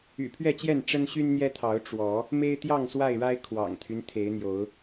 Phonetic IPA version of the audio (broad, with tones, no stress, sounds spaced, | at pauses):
y̰˨˩ pʰ ɥ ɛ˥˨ t͡ɕ j ɛ˥˨ n ʈ͡ʂ ə˦ n ɕ y˦ n n̪ j ɛ˦ t̪ʰ ɑ˨˦ ʊ̯ ʈ͡ʂ w ɔ˨˦ | m e˦ ɪ̯ t̪ j ɑ˥˨ ŋ s w a˥˨ ɪ̯ ɻ a˦ ɪ̯ kʰ w ɑ̰˨˩ ŋ t̪ʰ y˦ n t̪ʰ e˨˦ ɪ̯ n̪ j o˨˦ ʊ̯